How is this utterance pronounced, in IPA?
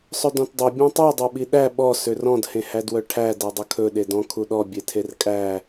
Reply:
sˤ ɵ d ɔ̃ t dˤ ɵ bʲ ɔ̃ tˤ u dˤ œ ɓ i ɗ æ ɓ ɔ s ø r ɔ̃ d h ẽ h æ d w œ ʈʰ æ d æ dˤ ɵ kʰ ɵ ɗ e d ɔ̃ kʰ u ɗ ɔ bʲ e tʰ e r kʼ æ

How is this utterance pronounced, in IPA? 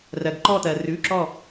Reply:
r ɜ˩ ɡ ǃ ɔ˧˩ t ɜ˩ r ʉ˩˧˩ ǁ ɔ˧˩

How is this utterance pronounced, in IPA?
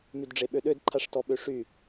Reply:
m y d ɖ͡ʐ e ɓ ø ɗ ø d ǃʰ a ʂ t ɔ ɓ ø ʂ y

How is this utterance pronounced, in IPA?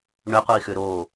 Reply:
ɳ ʏ qʷ i x ʏ ɾ o

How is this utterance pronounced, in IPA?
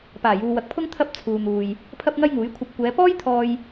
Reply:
p aː˨˩ j uː˨ w ɐ˨ k̚ pʰ ʊ˥ ŋ t̪ʰ ɐ˥ p̚ t͡sʰ uː˨ n̪ uː˨ j | pʰ ɐ˥ p̚ ŋ ɐ˥ j ŋ uː˨˥ j kʷʰ ɐ˧ p̚ kʷ ɛː˨˧ p ɔː˥ j t̪ʰ ɔː˧ j

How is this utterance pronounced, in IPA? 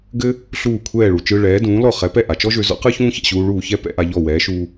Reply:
ɡ ɘ˥ | ɬ uː˥˩ kʷʰ ɛː˥˩ ɭ u˩ t͡ʃ ɯ˧ ɭ ɛː˩˥ d ũː˩˥ l ɔ˥˩ χ ɛ˩˥ p ɛ˥˩ ʔ a˩ t͡ʃ ɔ˥ ʒ ø˧ z ɔ̰˥ q ɯ˥ ç ũː˥ ç ɛ̰˥˩ ɕ uː˧ ɭ uː˥˩ ç ɛ˥ p ɛ̰˩˥ ʔ a˧ ʎ ɔ˥˩ w ɛː˩˥ ʃ u˧

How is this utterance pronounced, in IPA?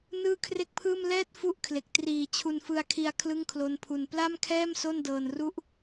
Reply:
n ɯː˥˩ kʰ r e˥˩ k̚ pʰ ɯː˥˩ m l ɛː˥˩ t̚ f u˥˩ ʔ kʰ l e˨˩ k̚ t r iː˨˩ t͡ɕʰ u˧ n f ɯ˧ a̯ kʰ i˧ a̯ kʰ l ɯ˥˩ ŋ kʰ l o˦˥ n pʰ u˧ n p l a˥˩ m kʰ ɛː˥˩ m s o˥˩ n d ɤː˧ n r u˥˩ ʔ

